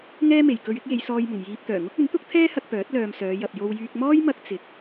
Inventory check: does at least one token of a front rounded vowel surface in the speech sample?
yes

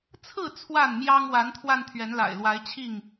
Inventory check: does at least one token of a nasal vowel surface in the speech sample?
no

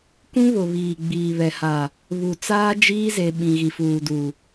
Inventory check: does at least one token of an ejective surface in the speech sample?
no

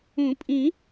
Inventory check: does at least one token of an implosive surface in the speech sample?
no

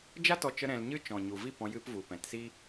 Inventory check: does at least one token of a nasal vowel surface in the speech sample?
yes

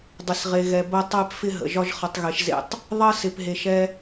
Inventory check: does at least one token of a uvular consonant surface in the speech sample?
yes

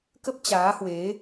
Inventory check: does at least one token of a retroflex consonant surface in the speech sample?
no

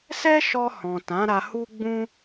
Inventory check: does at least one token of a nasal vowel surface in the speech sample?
yes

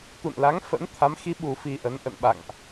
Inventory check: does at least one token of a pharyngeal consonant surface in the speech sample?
no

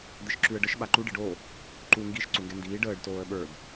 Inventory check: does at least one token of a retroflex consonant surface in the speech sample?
yes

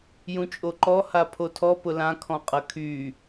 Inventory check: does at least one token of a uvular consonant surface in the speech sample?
yes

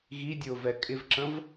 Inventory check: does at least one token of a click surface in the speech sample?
yes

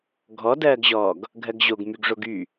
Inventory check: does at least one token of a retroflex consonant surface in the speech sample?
yes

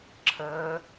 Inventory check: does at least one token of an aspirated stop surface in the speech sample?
yes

